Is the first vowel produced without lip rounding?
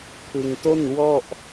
yes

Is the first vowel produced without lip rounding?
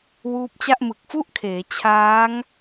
no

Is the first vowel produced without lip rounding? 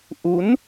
no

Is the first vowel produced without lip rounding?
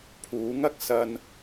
no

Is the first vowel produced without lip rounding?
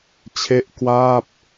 yes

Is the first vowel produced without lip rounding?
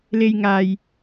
yes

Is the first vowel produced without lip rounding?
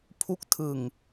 no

